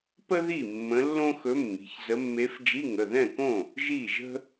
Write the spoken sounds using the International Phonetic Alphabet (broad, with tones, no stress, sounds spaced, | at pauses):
p ə˥ ð i˥˩ mː ə̃˧˥ lː õ˥ x ɵ˧˥ mː i̤˩˧˩ ç z ə˧˥ mː e˧˥ f d͡ʒ i˧˥˧ ŋ ə˩˧˩ ð ɛ̃˥˩ k õ˥˩ | ʒ i˥˩ ʒ ə̤˥